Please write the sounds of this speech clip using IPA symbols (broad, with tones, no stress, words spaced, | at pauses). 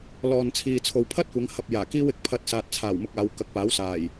lɔː˨nt͡sʰiː˨t͡sʰo˨w pʰɐ˥t̚kʷɐ˨˧ŋ hɐ˧p̚ jaː˨˩kiː˥w ɪ˨k̚pʰɐ˧t̚ saː˨t̚t͡sʰaː˨˩wmʊ˧k̚ aː˨˧wkɐ˨˥k̚paː˨˥wsaː˨˩j